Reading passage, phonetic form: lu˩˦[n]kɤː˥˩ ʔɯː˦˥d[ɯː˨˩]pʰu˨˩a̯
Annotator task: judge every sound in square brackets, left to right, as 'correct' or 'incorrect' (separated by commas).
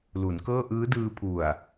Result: correct, incorrect